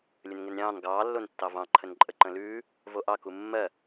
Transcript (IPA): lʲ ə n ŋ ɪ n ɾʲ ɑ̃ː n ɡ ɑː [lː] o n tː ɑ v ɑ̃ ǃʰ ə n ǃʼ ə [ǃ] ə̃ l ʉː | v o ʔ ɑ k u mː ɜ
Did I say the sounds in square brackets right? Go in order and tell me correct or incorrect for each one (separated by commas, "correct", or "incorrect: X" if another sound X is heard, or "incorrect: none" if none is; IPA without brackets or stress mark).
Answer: correct, correct